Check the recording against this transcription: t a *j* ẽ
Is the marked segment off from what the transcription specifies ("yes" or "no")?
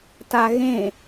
yes